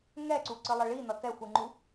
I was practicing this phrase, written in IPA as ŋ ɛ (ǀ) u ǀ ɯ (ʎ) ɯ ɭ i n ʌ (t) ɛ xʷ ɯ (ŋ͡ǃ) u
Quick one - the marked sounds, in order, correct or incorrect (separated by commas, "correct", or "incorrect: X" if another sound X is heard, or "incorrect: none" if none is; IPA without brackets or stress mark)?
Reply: correct, incorrect: lˠ, correct, correct